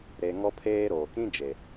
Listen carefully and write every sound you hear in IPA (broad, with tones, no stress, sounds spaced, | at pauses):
ɾ e˨ ŋ ɔ˦ pʰ eː˦ ɾ oː˨ k ĩ˦ d͡ʒ e˨